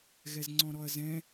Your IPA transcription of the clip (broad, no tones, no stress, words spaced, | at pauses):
ɣɛzŋ͡ǀɔ̃ɾɔɐ̯zɛ̃